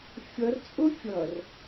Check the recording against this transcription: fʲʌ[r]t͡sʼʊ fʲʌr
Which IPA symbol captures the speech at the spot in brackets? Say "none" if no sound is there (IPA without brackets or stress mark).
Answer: r